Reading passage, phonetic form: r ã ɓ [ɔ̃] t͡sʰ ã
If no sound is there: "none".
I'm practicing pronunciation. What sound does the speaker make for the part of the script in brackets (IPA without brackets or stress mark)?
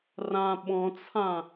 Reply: ɔ̃